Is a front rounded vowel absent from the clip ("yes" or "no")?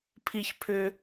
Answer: no